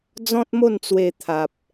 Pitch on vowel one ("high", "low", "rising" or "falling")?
high